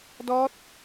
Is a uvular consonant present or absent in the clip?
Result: absent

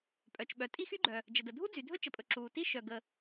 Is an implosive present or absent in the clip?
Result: present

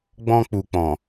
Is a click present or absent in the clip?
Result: absent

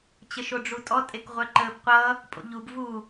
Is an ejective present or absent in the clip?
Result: present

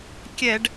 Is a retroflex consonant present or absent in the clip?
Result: present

